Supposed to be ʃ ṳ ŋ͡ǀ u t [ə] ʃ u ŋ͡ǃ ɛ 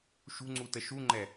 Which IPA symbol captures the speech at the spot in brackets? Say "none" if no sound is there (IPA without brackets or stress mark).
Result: ə